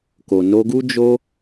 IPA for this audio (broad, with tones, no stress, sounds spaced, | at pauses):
k o˨ n o˧ ɡ u˦ d͡ʒ o˦